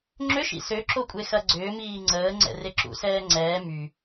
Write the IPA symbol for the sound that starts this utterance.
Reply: ŋ͡ǁ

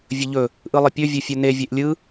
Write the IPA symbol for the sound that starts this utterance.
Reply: vʲ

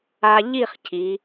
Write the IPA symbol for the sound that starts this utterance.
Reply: a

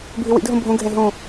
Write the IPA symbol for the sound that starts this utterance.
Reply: bʱ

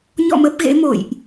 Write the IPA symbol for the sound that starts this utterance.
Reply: ɲ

